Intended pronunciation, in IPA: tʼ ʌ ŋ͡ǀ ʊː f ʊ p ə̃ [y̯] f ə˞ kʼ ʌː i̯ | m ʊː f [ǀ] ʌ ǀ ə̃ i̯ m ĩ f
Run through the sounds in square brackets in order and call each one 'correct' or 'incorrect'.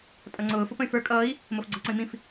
correct, incorrect: ɡ͡ǀ

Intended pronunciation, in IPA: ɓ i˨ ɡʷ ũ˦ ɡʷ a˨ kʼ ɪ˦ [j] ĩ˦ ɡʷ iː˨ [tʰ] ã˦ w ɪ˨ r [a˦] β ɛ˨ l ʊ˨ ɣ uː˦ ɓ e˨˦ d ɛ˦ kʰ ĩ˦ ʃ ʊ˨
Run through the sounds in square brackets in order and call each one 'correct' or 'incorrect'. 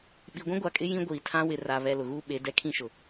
correct, correct, incorrect: a˨

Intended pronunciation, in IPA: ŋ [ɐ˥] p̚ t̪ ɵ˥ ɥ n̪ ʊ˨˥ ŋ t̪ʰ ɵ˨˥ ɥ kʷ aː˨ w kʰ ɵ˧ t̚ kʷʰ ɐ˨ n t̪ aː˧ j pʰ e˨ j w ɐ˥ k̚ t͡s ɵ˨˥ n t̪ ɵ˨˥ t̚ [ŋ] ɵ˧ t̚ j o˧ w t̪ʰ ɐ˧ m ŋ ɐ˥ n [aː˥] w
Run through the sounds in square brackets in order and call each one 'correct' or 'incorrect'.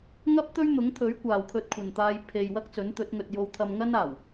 correct, correct, incorrect: aː˨˩

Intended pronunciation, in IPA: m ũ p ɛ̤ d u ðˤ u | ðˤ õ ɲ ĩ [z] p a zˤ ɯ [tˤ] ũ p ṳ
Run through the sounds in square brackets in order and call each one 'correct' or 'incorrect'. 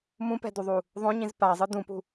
correct, incorrect: d

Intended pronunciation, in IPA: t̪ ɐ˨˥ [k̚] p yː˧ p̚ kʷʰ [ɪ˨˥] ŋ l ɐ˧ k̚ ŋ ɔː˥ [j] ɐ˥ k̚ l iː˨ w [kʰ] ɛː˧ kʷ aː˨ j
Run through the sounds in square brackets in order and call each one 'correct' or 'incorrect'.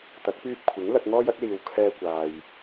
correct, correct, correct, correct

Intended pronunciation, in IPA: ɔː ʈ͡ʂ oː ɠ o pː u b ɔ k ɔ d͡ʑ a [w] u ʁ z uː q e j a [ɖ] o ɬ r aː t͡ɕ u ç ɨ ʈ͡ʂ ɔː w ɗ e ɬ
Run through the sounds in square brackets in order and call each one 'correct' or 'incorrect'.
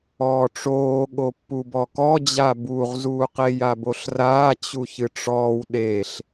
incorrect: b, incorrect: b

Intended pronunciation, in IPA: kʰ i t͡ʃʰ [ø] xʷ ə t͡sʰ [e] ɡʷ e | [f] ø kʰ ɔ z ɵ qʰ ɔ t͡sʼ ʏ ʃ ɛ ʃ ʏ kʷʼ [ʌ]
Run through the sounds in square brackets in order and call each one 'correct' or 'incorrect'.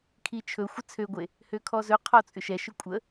incorrect: ɵ, incorrect: ø, incorrect: h, incorrect: ə

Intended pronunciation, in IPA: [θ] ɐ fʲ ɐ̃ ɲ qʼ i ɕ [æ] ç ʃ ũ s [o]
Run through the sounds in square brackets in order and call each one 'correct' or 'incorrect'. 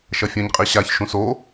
incorrect: ʃ, incorrect: a, correct

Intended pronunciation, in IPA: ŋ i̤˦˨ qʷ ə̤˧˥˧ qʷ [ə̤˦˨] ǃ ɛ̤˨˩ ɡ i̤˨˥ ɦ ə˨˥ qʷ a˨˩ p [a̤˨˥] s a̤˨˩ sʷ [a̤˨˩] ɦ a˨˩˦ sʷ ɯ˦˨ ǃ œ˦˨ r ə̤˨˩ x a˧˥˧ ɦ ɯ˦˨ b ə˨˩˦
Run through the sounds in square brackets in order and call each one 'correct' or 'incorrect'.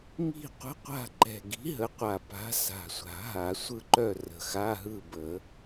incorrect: a̤˦˨, correct, incorrect: a̤˨˩˦

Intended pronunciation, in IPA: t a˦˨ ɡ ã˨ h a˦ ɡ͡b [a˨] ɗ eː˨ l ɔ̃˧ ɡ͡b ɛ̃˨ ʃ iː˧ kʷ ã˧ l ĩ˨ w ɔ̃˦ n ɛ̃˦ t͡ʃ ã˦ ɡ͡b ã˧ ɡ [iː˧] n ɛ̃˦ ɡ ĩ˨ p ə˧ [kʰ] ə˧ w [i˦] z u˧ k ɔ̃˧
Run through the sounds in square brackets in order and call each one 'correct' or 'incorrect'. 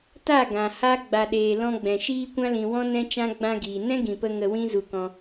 correct, incorrect: iː˨, incorrect: ŋ, incorrect: ĩ˦

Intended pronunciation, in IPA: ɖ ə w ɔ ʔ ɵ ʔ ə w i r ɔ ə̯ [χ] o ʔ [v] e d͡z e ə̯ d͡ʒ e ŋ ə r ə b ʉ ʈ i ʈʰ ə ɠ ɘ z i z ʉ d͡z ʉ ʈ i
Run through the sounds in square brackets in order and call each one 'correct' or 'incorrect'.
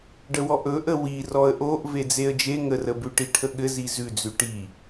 incorrect: ʔ, correct

